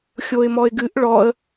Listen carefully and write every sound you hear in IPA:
xʲ o ɪ̯ m ɔ ɪ̯ ɡ ɨ ʔ ɭ ɔ ə̯

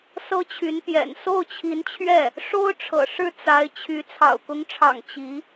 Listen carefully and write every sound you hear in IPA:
s ɤ˥ t͡ɕʰ y˧˥ n p j ɛ̰˨˩ n s o˥˩ ʊ̯ t͡ɕʰ i˧˥ n t͡ɕʰ ɥ ɛ˥˩ | ʂ o˥ ʊ̯ ʈ͡ʂʰ ɤ̰˨˩ ʂ ɻ̩˥˩ t͡s a˧˥ ɪ̯ t͡ɕʰ y˧˥ t͡sʰ ɑ̰˨˩ ʊ̯ k ʊ˧˥ ŋ ʈ͡ʂʰ ɑ̰˨˩ ŋ t͡ɕ i˧˥

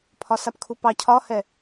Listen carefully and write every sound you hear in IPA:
pʰ ɒ s a p kʰ u p ɑ cʰ ɒ h ɛ

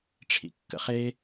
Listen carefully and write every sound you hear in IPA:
ʈ͡ʂʰ ḭ kː ə̰ χ e

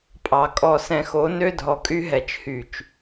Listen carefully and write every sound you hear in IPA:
pʼ ɑ˨ kʼ ɔ˨ s ɛ̃˨ x o˨˦ n ø˦ dʱ ɔ˨ kʼ y˦ ɦ ɛ˨ t͡ʃ h y˨ t͡ʃ

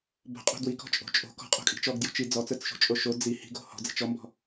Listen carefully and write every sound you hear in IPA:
b o̤ qʼ o̤ d w i k ɔ̤ t͡ʃʼ o̤ t͡ʃʼ o̤ k ɔ̤ qʼ o̤ kʼ i̤ t͡ʃ ɔ ɡ d j o̤ t͡ʃ i d͡z ɔ t͡s ə˞ t͡s ʃ o̤ t͡ʃʼ o ʃ o d͡z i h i̤ ɡ o̤ h ɔ̤ d͡z i̤ t͡ʃ ɔ m b ɔ̤

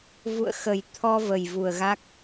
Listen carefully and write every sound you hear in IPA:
v ṵ˧˨ ə̯ x ə˨˩ j t̪ʰ ɔ˧ v ə˨˩ j v u˨˩ ə̯ ɣ a˦˥ k̚

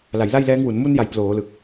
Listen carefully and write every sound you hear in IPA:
l a˩˦ j l a˥˩ j l ɛː˦˥ ŋ w u˩˦ n m u˧ n j a˩˦ j p l oː˩˦ l ɯ˨˩ k̚

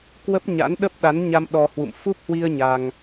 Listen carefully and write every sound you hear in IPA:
k w ə˦˥ p̚ ɲ a̰˧˥ n ɗ ə˦˥ p̚ ɗ a˨˦ n ɲ a˧ m ɗ ɔ˧ h w ṵ˧˨ m f u˦˥ p̚ h w i˧ ə̯ ɲ a˧ ŋ

